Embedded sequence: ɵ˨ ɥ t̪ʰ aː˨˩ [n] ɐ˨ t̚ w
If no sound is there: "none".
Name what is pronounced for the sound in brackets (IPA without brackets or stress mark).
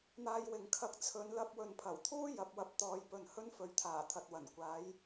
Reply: t̪ʰ